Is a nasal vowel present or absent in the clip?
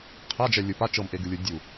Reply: absent